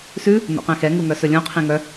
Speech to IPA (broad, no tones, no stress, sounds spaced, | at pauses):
s ʉ | n o̰ q ɛ̃ x ɛ ŋ u ŋ œ s ɵ lʲ õ qʰ ĩ ŋ œ